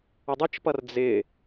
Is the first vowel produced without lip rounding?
no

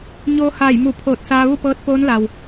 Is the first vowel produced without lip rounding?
no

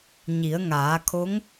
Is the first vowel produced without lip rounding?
yes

